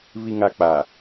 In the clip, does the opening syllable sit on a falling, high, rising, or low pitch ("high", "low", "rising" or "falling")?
low